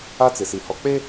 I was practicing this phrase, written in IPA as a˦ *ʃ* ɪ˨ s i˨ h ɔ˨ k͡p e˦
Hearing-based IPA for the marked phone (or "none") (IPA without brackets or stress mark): t͡s